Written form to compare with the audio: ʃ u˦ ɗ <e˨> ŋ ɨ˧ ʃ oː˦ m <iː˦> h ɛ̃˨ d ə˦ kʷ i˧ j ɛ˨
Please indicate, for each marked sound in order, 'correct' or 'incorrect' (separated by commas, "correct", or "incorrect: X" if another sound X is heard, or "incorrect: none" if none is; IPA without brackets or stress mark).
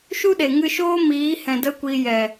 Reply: correct, incorrect: iː˨˦